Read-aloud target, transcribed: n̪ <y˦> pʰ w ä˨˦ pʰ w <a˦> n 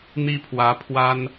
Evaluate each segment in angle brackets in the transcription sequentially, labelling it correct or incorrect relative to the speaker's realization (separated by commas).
incorrect, correct